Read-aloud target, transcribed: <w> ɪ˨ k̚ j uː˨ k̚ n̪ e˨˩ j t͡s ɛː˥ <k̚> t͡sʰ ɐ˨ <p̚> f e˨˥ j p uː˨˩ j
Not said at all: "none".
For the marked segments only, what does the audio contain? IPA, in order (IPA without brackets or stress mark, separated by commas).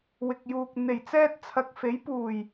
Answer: w, t̚, k̚